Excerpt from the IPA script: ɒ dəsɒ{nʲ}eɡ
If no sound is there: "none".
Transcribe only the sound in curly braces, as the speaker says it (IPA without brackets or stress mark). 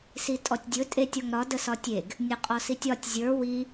tʲ